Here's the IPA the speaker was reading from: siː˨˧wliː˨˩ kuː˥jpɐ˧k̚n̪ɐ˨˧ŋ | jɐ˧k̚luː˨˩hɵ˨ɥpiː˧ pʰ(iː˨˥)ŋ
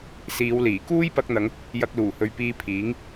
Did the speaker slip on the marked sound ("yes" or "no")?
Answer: no